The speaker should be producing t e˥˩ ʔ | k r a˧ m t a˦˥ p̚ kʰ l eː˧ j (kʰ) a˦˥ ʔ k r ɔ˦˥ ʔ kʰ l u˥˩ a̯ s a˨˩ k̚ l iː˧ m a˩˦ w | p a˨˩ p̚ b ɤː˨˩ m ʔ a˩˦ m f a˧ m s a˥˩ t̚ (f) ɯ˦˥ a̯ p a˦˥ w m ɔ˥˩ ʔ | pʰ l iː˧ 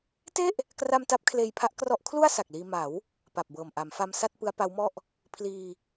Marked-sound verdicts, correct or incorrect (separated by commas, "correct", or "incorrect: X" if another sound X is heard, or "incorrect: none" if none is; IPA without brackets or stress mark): incorrect: pʰ, incorrect: p